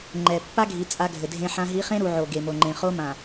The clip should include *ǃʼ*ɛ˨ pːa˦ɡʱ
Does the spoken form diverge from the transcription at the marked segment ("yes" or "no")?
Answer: yes